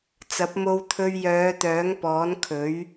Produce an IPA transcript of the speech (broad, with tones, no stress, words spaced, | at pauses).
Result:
t͡sɐ˨˥p̚mo˧wt̪ʰɵ˧ɥ jœː˨˧t̪œː˨˥ŋpɔː˨˥nkʰɵ˨˥ɥ